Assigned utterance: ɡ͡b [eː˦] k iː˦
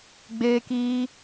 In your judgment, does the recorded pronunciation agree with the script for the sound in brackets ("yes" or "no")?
yes